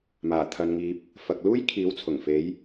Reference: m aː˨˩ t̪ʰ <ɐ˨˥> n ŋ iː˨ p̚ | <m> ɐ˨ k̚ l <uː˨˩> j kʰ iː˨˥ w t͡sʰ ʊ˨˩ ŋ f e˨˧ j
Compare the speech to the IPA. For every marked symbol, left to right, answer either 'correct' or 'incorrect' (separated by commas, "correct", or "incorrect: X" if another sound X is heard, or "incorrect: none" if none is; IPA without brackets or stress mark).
incorrect: ɐ˨, incorrect: f, incorrect: uː˥